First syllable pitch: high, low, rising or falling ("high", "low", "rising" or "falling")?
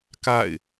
falling